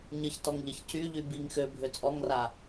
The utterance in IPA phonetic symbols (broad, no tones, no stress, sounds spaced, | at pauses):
ɲ ə ç t ɔ ŋ ʎ ə ç c y ʎ y b i ŋ x ø bʱ ø t͡sʼ ɔ ŋ r a